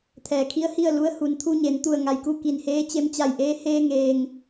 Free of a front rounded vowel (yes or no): yes